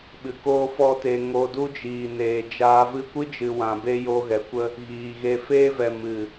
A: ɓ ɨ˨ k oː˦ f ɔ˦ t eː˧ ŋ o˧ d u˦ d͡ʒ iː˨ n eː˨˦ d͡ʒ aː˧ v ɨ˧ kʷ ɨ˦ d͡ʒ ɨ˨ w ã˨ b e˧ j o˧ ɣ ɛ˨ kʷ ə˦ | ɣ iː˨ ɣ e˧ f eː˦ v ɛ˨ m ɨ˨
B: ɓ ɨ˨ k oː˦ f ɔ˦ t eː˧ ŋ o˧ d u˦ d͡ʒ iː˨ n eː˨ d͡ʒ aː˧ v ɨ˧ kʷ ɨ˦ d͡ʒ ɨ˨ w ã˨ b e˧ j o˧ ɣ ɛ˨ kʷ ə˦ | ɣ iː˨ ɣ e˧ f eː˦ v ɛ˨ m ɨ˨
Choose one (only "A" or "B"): B